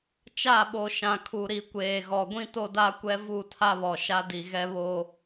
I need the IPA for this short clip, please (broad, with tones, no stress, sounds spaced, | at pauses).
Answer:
t͡ʃ a˦˨ ɓ o˨ ʃ ã˨ kʰ u˨ ɾ i˨ kʷ eː˨ ɣ ɔ˨ ɡʷ ĩ˦ t o˦ d a˦ kʷ ɛ˦ v u˦˨ tʰ a˦ β ɔ˨ ʃ a˦ d i˨ ɣ ɛ˦ β o˦